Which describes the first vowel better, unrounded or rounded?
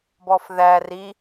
rounded